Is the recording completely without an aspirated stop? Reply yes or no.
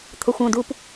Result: no